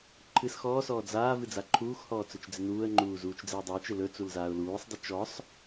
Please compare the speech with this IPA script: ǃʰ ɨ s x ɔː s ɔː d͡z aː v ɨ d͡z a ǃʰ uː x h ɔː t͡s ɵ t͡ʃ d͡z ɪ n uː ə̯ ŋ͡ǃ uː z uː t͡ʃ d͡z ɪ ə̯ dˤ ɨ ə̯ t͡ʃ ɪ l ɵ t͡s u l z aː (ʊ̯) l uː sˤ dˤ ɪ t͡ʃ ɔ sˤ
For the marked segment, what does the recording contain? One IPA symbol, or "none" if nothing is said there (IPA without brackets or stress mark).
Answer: ʊ̯